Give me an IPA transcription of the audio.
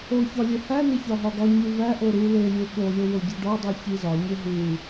oçɒ lʲehæne çɒɦɒɡɒɲu væʔo ɾu lelʲe ɠolʲo woɟiɖɒdˤu çizɒɲe ɦu

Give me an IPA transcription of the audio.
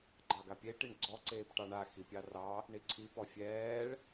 ɡ͡ǃɑɡapʲe ʈiɳɡ͡ǀɔ ǀeːpʈɑɳa xipʲɑrɑ | ɳiǀʰi pɔfʲɛːɭ

